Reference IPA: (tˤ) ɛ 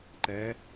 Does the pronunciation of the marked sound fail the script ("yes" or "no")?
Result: yes